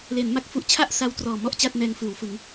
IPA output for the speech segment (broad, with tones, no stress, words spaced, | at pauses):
le˩˦nma˦˥k̚fu˦˥ʔ t͡ɕʰa˥˩ʔsa˦˥w trɔː˨˩mɔ˥˩ʔt͡ɕa˥˩t̚nɛː˧ŋ fɯː˩˦w fɯ˩˦ŋ